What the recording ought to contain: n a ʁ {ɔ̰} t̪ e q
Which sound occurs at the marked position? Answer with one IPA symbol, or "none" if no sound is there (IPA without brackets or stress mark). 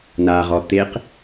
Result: ɔ